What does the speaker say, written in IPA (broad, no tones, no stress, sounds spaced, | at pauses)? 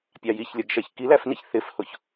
pʲ ɑ j i ç lʲ ʌ ɡ ʃ ɛ ç k i l æ f n i ç θ ɪ f h ʊ ç